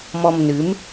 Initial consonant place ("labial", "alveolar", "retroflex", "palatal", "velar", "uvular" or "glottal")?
labial